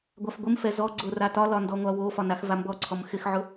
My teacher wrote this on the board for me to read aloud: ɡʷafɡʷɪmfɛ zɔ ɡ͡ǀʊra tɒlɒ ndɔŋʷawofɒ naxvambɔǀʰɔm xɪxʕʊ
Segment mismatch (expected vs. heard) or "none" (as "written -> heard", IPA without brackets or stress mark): none